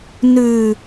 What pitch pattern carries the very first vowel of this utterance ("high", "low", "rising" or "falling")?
low